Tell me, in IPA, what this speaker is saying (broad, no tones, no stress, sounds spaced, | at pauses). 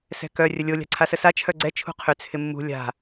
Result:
s ɛ̤ k œ rʲ ə lʲ o lʲ a̤ ǀʰ a s ə s a t͡ʃʰ œ ɡ͡ǀ ɛ t͡ʃʰ ṳ qʰ ʏ t͡sʰ ɪ mː ṳ lʲ a̤